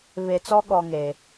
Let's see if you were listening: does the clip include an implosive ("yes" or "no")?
yes